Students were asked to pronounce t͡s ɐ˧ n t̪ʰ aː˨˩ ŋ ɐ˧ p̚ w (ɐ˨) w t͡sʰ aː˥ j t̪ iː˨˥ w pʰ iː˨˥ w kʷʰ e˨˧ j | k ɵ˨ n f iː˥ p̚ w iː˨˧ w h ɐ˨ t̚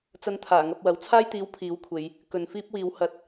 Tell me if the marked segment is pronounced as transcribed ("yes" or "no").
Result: no